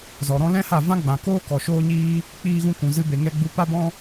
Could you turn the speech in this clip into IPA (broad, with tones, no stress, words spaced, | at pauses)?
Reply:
zɔ˨ ɾɔ̃˧lɛ̃˦ha˦˨vã˦ ɡ͡bã˨koː˦ kɔ˨ʃoː˦ɲiː˦ | k͡piː˧ɣũ˧kũ˨zɨ˧ be˨ŋɛ˧ɡ͡bu˧ pa˦bɔ̃˦